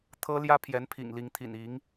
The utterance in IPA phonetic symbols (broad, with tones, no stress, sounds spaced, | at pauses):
t̪ʰ ɤ˥ l j ä˥ pʰ j ɛ˧˥ n pʰ ḭ˨˩ ŋ l i˧˥ ŋ t̪ʰ ḭ˨˩ n i˧˥ ŋ